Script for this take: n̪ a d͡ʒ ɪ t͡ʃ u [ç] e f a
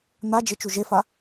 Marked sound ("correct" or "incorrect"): incorrect